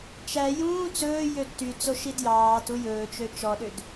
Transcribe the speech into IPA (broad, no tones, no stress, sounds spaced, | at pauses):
t͡ʃ æ j ũː t͡s ɵː j ø d t y t͡s o ʃ i d j ɑː t u j ɵː t͡ʃ ø t͡ʃ ɔ ɗ ø d